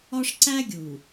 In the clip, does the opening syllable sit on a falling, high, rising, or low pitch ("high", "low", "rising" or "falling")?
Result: high